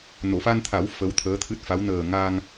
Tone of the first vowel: low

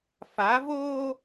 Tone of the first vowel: rising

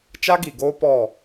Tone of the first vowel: high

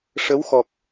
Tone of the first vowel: rising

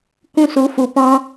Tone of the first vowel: high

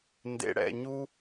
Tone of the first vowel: low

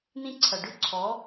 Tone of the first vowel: high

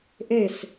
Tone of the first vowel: falling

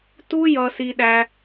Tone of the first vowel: high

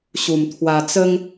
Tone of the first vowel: low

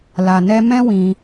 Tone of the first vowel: low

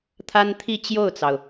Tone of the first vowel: high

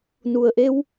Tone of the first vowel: low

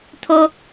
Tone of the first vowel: high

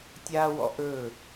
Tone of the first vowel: high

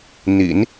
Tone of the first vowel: low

